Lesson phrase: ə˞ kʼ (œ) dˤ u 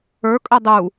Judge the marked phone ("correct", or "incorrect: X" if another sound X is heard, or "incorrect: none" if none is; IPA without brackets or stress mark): incorrect: ə